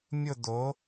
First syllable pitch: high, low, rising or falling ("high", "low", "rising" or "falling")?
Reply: falling